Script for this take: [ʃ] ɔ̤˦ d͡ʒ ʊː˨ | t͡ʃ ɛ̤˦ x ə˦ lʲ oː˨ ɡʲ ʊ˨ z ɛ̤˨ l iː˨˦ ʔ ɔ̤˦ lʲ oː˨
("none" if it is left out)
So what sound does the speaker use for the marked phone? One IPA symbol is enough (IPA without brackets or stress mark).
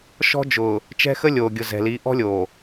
ʃ